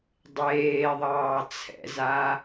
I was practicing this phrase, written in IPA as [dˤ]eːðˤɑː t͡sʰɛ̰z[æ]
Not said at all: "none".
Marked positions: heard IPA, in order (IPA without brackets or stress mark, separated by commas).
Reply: dˤ, a